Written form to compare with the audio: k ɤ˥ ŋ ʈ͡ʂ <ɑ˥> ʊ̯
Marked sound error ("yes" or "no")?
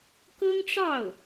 yes